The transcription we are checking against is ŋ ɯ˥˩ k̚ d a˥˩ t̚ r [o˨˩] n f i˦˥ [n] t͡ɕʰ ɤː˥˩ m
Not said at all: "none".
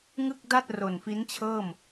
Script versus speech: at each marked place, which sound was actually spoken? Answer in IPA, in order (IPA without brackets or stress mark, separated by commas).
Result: o˨˩, n